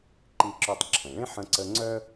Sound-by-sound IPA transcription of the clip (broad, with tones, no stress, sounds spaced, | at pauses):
ǃ i˧ ǁ œ˧ tˤ ǁʰ ə̃˩ ɭ ẽ˥ ħ ə̃˧ ǀ ə˧ ŋ͡ǀ œ˥